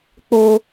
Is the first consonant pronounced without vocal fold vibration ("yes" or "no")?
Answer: yes